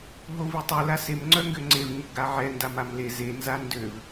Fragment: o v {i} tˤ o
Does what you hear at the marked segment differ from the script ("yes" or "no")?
no